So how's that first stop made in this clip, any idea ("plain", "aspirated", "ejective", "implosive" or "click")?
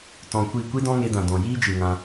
plain